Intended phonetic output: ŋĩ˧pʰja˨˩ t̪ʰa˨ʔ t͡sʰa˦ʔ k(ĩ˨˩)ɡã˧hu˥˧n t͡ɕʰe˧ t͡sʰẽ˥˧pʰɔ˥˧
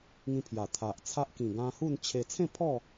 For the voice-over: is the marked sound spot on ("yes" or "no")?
yes